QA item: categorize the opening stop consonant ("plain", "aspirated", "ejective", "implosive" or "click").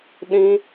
implosive